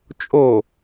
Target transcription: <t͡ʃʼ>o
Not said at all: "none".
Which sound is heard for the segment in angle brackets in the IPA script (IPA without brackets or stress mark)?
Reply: t͡ʃʼ